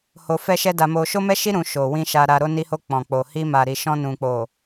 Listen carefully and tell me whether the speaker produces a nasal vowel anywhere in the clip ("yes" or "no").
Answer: yes